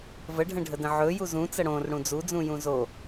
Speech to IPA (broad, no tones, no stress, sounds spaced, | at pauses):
v ə ɖʱ ə̃ ɖʱ ə d ə̃ ʕ ɵ j u z ũ t͡s ə ɽ õ r ɽ ũ d͡z u d͡z ũ j ũ z o